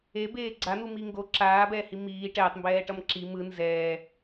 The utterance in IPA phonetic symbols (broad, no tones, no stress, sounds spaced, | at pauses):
e b eː ɡ͡ǀ a n̪ u m i ŋ ɡ o ǁ aː b ɛː h i m iː ʈ ɛː tˤ m b ɛː ʈ ʌ m ǁ i m ɯ n z ɛː